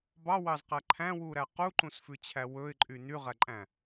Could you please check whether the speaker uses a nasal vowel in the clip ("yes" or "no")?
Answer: yes